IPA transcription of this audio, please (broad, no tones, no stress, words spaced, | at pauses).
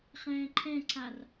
χɛ̃ːǃʰɛ̃ǀʰar